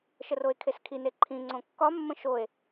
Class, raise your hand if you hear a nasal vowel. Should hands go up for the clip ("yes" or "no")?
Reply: yes